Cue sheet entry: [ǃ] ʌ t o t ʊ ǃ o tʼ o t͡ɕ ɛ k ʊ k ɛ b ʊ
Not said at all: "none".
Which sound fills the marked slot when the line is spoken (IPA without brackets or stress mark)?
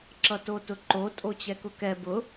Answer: ǁ